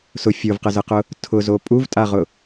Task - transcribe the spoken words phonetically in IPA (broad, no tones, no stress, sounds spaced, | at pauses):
s ʊ fʲ o v q ə z ə q ʊ | tʰ ʊ z o pʼ u v tʼ a ʁ ʊ